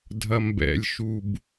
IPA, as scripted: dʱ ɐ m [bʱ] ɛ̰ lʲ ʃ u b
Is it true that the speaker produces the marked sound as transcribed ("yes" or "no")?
no